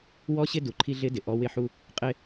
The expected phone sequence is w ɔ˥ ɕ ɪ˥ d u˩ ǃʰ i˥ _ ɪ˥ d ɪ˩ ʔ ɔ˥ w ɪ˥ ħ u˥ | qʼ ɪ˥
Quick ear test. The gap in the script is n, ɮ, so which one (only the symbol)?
ɮ